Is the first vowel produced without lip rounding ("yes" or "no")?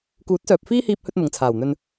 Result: no